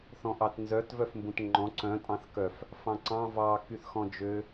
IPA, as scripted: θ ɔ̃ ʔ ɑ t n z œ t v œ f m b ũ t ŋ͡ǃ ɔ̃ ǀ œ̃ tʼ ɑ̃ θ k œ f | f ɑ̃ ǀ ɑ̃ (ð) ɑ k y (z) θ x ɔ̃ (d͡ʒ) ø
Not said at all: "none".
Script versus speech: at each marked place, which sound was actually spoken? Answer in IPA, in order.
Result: v, none, d͡ʒ

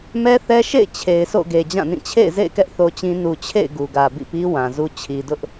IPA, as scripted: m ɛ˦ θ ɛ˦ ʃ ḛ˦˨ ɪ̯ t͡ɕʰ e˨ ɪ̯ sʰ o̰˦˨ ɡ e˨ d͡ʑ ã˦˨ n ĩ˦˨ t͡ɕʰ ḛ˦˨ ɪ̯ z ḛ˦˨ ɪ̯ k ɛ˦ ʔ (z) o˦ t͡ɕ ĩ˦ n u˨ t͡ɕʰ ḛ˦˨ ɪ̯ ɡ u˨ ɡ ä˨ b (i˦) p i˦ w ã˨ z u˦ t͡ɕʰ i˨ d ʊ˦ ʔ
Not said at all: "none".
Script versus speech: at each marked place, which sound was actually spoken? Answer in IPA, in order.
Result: θ, ḭ˦˨

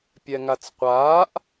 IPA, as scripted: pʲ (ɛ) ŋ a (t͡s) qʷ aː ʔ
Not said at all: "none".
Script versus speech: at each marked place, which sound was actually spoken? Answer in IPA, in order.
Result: ɛ, t͡s

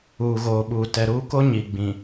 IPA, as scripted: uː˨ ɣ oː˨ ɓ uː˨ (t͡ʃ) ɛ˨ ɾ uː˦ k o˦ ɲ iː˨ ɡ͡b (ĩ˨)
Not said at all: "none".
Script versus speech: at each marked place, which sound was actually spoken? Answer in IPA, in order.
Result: t, ĩ˨

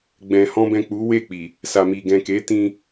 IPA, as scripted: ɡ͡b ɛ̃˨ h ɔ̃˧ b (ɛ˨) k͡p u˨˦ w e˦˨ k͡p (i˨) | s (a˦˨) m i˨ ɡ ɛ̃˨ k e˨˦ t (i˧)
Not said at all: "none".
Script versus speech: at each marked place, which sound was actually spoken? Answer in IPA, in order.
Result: ɛ̃˨, i˨, a˨, ĩ˧

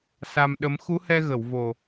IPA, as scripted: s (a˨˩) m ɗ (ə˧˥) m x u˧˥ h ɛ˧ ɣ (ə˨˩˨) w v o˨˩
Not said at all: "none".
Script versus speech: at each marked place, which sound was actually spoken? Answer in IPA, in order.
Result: a˧, ə˧˥, ə˨˩˨

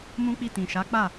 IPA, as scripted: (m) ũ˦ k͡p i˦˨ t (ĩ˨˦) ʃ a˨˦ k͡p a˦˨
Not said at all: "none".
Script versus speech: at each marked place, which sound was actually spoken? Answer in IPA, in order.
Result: m, ĩ˨

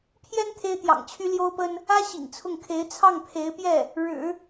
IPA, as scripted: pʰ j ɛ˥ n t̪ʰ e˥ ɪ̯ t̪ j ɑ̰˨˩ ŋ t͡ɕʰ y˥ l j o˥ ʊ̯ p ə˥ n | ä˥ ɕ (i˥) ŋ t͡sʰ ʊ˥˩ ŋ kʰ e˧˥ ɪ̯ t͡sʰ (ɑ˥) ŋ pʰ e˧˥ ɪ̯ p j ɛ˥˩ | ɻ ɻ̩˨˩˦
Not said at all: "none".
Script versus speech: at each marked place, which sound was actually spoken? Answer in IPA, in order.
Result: ḭ˨˩, ɑ˥˩

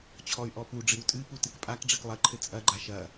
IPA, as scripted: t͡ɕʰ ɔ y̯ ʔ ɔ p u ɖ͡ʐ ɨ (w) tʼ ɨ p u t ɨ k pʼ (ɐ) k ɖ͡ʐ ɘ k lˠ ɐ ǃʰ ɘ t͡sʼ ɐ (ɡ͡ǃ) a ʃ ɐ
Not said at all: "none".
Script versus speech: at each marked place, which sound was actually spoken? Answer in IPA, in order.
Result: w, a, ɡ͡ǃ

